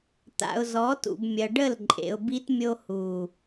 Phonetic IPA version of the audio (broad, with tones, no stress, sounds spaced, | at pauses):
t̪ a̰˨ ʊ̯ z ɔ˨˦ t ṵ˨ b mʲ ɐ˨ ɖ ə˦˨ l ǃʼ ḛ˨ ʊ̯ b i˦ t mʲ o˦ h u˨